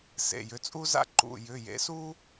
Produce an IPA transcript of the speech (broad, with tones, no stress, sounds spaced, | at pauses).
s ḛ˩˧˩ j ʏ˩˧˩ t͡sʼ u˦ z a̰˦ ǃ ṵ˩˧˩ j ʏ˩˧˩ j ḛ˩˥ s u˦